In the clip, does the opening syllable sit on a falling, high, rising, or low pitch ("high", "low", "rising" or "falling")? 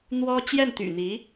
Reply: high